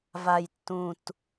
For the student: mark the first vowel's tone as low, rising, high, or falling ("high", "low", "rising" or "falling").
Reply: falling